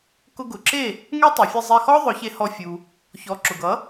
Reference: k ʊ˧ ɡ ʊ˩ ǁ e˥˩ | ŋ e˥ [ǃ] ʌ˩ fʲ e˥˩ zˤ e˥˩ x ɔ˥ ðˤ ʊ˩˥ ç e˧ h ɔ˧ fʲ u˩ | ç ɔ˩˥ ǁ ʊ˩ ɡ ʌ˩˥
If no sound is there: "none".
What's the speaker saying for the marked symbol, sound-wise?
tˤ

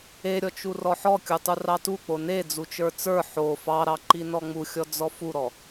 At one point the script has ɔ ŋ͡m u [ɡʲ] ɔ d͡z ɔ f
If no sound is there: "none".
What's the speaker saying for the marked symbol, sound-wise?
xʲ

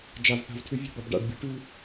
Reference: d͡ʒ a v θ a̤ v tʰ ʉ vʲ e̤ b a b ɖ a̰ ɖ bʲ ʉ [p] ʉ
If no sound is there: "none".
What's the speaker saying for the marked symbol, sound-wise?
ʈ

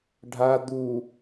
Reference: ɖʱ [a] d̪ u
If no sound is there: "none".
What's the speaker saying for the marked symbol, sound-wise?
a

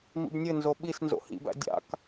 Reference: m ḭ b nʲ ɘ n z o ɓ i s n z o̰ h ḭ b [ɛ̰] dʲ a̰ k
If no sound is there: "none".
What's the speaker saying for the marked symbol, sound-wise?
æ̰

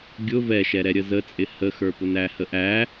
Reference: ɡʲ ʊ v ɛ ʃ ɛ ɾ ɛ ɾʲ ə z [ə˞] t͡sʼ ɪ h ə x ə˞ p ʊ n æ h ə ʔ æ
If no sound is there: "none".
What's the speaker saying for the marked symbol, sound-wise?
ə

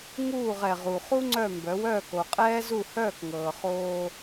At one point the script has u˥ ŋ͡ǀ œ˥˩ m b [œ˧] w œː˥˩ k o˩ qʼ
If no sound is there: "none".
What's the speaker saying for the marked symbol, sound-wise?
œ˩˥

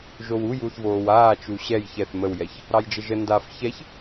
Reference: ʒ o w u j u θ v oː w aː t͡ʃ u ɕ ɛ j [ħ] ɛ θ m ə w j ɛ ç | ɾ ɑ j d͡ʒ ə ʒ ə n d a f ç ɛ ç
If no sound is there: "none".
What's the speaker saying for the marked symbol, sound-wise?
ç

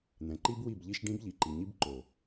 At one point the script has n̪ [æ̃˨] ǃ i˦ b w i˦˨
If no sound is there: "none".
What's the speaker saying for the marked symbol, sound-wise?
ɛ̃˨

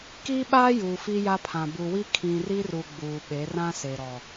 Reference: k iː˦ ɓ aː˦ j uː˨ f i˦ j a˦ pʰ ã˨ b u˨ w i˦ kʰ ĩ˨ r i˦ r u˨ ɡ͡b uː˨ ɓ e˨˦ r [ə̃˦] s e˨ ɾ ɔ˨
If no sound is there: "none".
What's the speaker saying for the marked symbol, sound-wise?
ã˦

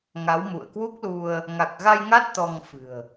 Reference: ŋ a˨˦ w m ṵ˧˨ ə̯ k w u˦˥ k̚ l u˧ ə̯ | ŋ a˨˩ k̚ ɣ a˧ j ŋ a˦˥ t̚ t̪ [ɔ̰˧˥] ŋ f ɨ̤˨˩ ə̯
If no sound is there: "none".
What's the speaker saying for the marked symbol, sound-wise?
ɔ˧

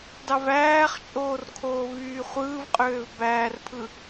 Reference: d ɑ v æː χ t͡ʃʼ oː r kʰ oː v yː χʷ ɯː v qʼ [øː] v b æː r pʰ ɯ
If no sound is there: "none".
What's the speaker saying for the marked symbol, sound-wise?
øː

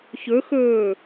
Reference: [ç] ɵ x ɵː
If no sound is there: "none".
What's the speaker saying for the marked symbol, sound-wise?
ç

